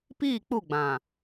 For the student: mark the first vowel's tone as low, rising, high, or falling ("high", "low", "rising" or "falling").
falling